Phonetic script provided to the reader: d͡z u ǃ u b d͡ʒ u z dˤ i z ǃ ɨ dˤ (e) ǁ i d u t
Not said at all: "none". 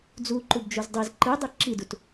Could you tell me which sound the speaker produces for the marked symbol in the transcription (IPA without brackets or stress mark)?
e